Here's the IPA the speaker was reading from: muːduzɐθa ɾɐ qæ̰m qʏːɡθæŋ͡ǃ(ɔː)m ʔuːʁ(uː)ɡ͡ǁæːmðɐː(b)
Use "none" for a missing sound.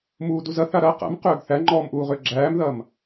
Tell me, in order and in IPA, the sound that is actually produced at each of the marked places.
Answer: ɔː, ʏː, m

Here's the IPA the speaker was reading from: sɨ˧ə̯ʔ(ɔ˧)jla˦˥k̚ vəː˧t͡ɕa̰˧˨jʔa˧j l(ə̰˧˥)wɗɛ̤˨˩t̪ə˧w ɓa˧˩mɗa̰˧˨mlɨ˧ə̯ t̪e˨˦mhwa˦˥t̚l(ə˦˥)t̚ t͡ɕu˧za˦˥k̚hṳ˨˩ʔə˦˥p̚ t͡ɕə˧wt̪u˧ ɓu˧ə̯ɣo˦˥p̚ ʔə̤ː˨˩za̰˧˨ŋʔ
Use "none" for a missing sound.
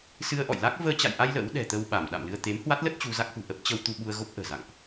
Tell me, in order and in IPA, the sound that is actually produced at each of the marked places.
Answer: ɔ̰˧˨, ə̰˧˥, ə˦˥

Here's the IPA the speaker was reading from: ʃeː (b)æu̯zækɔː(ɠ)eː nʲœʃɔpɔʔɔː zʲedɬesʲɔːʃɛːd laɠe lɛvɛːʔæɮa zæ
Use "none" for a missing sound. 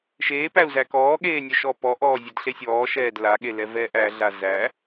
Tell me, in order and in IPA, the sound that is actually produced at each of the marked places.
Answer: p, ɠ

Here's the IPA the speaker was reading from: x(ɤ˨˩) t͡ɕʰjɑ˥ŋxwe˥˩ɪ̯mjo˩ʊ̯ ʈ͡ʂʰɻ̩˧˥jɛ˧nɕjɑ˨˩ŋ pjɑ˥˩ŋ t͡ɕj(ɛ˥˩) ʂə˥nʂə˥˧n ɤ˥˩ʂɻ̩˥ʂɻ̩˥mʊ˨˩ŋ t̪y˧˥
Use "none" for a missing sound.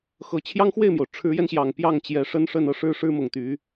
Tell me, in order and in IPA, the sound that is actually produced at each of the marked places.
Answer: ɤ˨˩, ɛ˧˥

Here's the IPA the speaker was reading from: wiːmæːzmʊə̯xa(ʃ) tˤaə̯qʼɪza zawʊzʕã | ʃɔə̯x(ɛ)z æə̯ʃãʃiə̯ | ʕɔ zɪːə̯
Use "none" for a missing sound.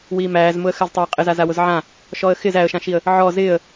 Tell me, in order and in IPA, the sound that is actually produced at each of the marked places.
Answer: z, ɪ

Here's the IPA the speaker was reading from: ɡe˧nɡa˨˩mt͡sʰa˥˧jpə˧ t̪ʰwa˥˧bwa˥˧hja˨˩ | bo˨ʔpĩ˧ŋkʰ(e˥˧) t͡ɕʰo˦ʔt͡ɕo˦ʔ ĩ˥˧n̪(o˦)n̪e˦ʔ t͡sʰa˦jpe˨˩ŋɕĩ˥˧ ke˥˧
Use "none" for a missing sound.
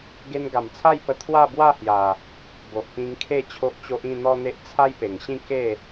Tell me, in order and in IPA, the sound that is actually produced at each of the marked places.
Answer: e˥˧, ɔ˦

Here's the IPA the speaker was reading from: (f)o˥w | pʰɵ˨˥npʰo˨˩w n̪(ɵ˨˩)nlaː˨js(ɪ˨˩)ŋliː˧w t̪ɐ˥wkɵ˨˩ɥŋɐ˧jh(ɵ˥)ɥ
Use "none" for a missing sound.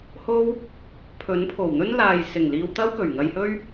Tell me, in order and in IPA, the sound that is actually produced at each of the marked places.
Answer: h, ɵ˥, ɪ˨˩, ɵ˥

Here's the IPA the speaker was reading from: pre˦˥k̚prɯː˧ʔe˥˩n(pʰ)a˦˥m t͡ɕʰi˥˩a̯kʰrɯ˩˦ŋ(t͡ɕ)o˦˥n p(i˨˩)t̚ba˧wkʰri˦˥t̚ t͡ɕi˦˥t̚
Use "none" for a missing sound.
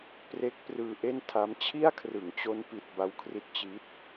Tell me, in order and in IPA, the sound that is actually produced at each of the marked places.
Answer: tʰ, t͡ɕ, i˨˩

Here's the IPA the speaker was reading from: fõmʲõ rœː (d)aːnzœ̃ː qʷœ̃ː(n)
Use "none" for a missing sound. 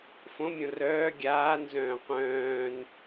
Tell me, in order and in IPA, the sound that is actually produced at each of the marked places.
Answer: ɡʲ, n

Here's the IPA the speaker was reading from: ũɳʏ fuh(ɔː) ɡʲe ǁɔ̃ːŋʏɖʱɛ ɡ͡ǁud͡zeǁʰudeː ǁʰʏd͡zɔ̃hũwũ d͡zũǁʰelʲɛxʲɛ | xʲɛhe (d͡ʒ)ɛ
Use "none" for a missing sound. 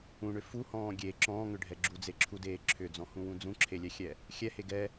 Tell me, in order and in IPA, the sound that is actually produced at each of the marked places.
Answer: ɔ̃ː, ɡ

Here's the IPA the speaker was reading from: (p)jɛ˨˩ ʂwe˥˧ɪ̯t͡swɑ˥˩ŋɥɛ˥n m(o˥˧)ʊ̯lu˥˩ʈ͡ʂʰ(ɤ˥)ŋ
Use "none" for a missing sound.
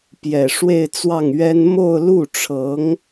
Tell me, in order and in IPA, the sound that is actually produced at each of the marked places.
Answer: p, o˥˧, ɤ˧˥

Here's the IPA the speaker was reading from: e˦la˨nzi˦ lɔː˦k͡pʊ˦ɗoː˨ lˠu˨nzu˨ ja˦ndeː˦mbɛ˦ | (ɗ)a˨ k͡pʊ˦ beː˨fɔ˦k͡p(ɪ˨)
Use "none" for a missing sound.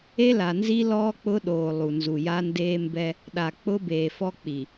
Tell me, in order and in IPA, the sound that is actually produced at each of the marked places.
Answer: ɗ, i˨

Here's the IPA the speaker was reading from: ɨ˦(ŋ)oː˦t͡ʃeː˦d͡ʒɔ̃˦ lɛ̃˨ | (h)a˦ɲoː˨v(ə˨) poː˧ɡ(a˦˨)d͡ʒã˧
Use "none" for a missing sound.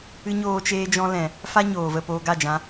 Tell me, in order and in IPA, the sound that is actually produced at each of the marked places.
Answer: ɲ, f, ə˦˨, a˦˨

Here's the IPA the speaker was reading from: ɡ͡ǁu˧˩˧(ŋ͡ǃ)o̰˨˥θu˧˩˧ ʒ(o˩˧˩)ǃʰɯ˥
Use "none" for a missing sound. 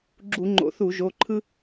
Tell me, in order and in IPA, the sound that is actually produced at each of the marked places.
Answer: ŋ͡ǃ, o˩˧˩

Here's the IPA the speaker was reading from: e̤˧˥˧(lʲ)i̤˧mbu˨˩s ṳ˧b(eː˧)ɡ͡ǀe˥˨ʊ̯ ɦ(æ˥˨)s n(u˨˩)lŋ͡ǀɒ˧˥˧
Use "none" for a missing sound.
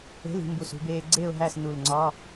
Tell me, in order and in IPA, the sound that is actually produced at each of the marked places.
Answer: l, eː˧, æ˥˨, u˨˩

